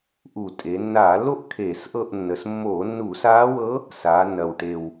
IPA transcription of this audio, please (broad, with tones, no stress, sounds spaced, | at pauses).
ʔ u˧˩˧ tʼ e˩˧ nː aː˧˩˧ lː o˥ ʔ kʰ eː˧˩˧ s ʔ ɤ˦˨ ʔ nː ə˨˩ s mː oː˧˩˧ nː u˧˩˧ s aː˧˥ w ɤ˧˥ | s aː˩˧ nː ɐ˨˩ w ʈ e˨˩ w